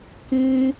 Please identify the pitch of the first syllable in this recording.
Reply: high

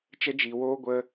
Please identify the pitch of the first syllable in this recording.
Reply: high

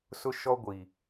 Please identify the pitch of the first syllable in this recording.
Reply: high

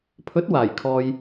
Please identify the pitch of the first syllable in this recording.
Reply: rising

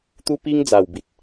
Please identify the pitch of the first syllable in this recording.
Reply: high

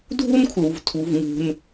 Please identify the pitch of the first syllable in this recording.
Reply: high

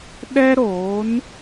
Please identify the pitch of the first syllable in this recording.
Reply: high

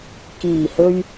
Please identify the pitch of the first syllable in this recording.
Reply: low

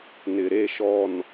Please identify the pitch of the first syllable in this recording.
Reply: low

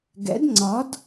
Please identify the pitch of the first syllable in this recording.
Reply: rising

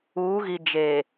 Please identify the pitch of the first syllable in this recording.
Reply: rising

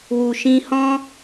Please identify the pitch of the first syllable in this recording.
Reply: low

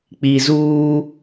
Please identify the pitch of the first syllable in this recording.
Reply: low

